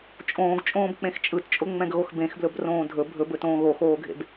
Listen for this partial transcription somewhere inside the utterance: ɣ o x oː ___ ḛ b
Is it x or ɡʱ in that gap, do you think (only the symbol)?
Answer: ɡʱ